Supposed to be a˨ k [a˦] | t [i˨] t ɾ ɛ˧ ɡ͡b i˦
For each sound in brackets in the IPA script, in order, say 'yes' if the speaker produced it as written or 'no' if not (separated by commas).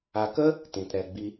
no, no